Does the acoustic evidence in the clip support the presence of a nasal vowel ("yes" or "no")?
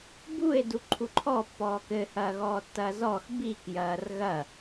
no